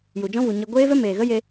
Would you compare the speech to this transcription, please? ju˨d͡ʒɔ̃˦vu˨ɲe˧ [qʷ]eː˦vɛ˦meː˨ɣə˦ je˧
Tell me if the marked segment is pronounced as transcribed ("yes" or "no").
no